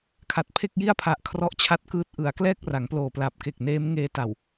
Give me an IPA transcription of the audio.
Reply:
kʰa˨˩t̚pʰe˥˩k̚ji˥˩a̯ pʰa˨˩ʔ kʰrɔ˦˥ʔt͡ɕʰa˦˥t̚kɯː˦˥t̚ ʔɯ˩˦a̯klɛː˥˩k̚ ra˩˦ŋploː˨˩pla˨˩p̚ke˨˩k̚ neː˦˥m ŋeː˧ta˨˩w

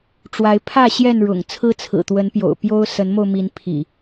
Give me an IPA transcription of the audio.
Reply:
ʈ͡ʂwa˨˦ɪ̯ pʰä˥˨ ɕjɛ˥˨nɻʊ̰˨˩ŋ t͡sʰɹ̩˦t͡sʰɹ̩˨˩t̪wə˨˦npjo̰˨˩ʊ̯ pjo˦ʊ̯ sə˨˦nmo˧ʊ̯mi˨˦n pʰḭ˨˩

